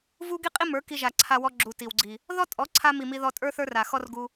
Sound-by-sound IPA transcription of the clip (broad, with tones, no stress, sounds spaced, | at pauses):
v u˦ ɡ i˦ qʼ i˦ m ə˞˨˦ k i˧ ʒ a˨ ǀʰ a˧ w ɔ˧ ɡ͡ǁ u˨ t i˨ w ɡ͡ǀ i˨ | ð ɔ˦ tʼ ɔ˨˦ ǀʰ a˧ m i˨ m i˧ ð ɔ˧ tʼ ə˞˦ θ ə˞˦ r a˨ x ɔ˦ r ɡ u˧